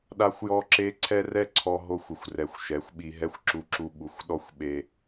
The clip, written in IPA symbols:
ɗ a˦ xʷ j ɔ˦ ǁ e˦ ǀʰ ɛ˦ r ɛ˦ ǀʰ ɔ˧ ɦ o˧ xʷ ɪ˨ xʷ r ɛ˨ xʷ ʃ ɛ˨˦ xʷ ɓ i˧ ɦ ɛ˦ xʷ ǁ u˧ ǁ u˧ ɓ u˨ xʷ ɗ ɔ˦ xʷ ɓ e˧

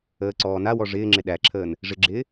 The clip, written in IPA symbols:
əː ǀ ɔː n a w ɔ ʐ ɪː ŋ͡ǁ ɪ ɗ æ ǁʰ əː n | ʐ ɪ ɡ͡ǁ ɪː

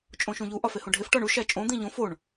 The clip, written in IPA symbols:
t͡ʃʼ õ ʃ ũ ʎ u ʔ ɒ f e h õ ɖʱ e f ʈ ɒ ɳ u ʃ æ t͡ʃʼ õ d̪ ĩ ʎ õ f o ɳ

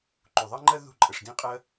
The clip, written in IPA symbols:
ǃ u˨ ðˤ ɜ˦ ŋ͡ǃ ɜ˦ ð ṳ˦˨ ǃʼ ə˨ ʂ d ĩ˧ qʼ ɜ˧

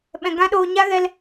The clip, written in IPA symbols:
ɓ ɛ̃˨ ɡ ã˦ ɗ oː˧ ɲ a˦ ɣ ɛ˧ l

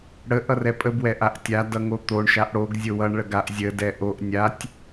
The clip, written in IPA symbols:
ɽ ə ʔ ʌ r ɛ pʼ ə b w ɛ ʔ a ʔ tʲ a d ʌ ŋ o t̪ o ɳ ʃ a ʔ ɽ o ɡ zʲ o w ʌ ɳ ɭ ə ɡ a ʔ zʲ ə d ɛ ʔ o ʔ nʲ a tʲ

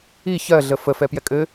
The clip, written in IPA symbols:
i ç ɜ ɮ ə f ə f ɛ p j ɛ kʼ ɘ

